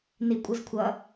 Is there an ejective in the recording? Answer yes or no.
yes